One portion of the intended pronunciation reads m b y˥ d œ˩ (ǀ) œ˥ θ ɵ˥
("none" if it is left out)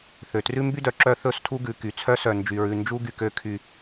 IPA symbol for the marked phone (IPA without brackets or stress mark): ǁ